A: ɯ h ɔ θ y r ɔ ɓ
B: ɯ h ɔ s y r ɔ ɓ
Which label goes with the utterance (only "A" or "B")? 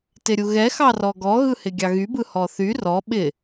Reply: A